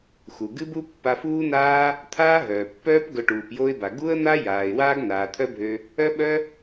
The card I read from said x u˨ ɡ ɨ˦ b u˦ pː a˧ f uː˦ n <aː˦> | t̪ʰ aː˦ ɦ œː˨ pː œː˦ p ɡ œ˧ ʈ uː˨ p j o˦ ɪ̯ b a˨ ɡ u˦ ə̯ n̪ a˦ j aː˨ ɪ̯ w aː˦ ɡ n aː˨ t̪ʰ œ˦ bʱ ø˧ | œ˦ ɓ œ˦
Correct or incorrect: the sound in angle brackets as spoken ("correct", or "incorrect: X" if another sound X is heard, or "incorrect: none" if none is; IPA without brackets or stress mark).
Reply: correct